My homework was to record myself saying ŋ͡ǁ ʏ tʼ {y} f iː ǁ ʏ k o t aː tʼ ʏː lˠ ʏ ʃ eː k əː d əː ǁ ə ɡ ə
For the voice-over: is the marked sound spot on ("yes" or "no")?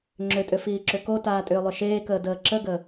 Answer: no